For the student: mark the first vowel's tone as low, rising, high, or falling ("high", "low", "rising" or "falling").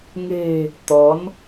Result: low